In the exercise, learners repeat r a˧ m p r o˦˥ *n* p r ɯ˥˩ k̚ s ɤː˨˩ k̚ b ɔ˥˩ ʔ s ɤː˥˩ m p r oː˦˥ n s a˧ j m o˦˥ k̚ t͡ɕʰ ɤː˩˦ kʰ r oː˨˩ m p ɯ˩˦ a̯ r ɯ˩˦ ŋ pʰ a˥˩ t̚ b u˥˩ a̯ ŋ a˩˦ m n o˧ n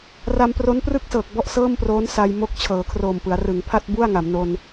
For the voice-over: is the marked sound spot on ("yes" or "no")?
yes